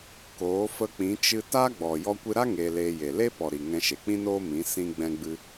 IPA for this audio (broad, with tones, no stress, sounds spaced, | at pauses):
k oː˨˦ f ə˧ k͡p ĩ˨˦ t͡ʃ ɨ˧ t a˦ ɡ͡b ɔ˨ j ɔ˧ kʷ ɨ˧ ɾ a˦ ŋ eː˧ l eː˧ j e˨ l e˦ p ɔ˨ ɾ i˨ ŋ ɛ̃˧ ʃ e˨ k͡p ĩ˦ n oː˦ m ĩ˨˦ s ĩ˧ ɡ͡b ɛ̃˧ ɡ͡b ɨ˧